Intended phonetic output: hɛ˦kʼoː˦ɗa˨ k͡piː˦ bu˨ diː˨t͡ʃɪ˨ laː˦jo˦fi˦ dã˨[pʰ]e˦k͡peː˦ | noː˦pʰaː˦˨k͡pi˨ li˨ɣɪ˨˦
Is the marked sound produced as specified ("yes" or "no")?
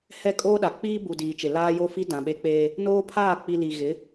no